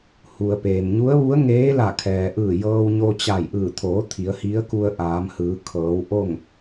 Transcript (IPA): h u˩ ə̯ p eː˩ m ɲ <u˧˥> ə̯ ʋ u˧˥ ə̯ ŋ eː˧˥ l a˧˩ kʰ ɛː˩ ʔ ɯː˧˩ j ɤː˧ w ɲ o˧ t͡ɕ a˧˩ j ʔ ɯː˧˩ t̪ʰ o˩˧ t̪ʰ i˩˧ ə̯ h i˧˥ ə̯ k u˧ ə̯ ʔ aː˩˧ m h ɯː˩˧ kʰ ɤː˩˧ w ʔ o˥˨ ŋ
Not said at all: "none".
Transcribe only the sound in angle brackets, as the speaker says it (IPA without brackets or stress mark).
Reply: u˧˥